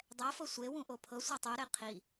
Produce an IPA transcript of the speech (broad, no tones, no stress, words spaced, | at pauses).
dˤɛfɤ sʷewũ ʔopʰɤsʷɛ tˤɯɾe qʰi